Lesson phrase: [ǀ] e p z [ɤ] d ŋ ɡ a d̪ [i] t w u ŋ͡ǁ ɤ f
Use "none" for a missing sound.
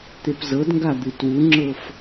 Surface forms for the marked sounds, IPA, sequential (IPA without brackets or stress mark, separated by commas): t̪, ɤ, ɨ